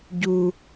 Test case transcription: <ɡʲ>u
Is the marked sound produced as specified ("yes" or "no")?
no